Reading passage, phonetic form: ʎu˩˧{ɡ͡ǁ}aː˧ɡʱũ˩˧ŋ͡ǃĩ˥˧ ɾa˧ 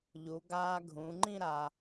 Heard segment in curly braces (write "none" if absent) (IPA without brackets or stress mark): ɡ